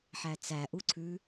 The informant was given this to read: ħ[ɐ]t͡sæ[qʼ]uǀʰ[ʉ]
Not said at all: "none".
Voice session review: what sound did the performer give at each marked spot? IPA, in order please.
æ, ʔ, ʉ

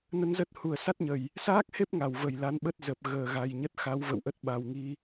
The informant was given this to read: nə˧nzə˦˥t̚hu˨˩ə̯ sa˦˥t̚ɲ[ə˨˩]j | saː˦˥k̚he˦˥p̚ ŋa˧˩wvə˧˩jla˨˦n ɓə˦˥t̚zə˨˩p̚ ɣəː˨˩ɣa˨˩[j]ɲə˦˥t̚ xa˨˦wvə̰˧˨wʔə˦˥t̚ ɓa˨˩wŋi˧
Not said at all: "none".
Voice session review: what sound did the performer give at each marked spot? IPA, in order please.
ə˨˩, j

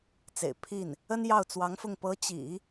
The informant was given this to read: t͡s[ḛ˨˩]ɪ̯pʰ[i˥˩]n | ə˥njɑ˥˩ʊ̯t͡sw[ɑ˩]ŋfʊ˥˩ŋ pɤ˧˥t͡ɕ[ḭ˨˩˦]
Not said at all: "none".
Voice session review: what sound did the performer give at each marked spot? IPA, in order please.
ḛ˨˩, i˥˩, ɑ˧˥, ḭ˨˩˦

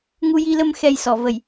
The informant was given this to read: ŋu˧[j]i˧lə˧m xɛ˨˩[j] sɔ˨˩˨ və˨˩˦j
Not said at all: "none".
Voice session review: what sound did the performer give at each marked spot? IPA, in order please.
j, j

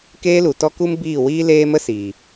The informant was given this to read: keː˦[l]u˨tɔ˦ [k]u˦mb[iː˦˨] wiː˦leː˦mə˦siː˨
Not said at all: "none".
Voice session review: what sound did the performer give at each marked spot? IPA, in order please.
l, k, iː˦˨

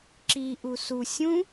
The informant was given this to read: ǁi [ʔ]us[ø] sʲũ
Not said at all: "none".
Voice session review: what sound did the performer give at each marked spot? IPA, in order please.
ʔ, u

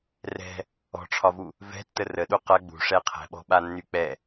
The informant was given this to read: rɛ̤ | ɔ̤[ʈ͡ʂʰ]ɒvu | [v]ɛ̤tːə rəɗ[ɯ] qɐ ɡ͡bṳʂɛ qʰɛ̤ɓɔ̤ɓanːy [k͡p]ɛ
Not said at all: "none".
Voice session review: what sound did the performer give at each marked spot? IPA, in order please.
ʈ͡ʂʰ, v, u, k͡p

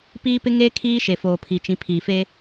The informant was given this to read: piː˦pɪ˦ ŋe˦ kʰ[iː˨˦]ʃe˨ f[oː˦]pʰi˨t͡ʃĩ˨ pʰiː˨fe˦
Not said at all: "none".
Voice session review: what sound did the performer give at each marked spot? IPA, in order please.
iː˦, oː˨

